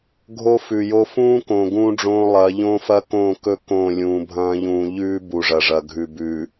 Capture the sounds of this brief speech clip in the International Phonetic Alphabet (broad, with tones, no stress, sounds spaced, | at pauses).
ɡʱ o˦ f ʉ˨ j o˦ f ũː˦ k õ˨ ɡ ũː˦ ɖ͡ʐ õː˦ lˠ ɐː˨˦ ʎ õː˦ f ɐ˦ k õː˦˨ k ɵ˦ k õ˦˨ lʲ ũː˨ bʱ ɐ̃ː˦ ʎ ũː˨ ʎ ʉː˦ b u˨ ʐ ɐ˨ ʐ ɐ˨ ɡʱ ʉ˨ b ʉː˨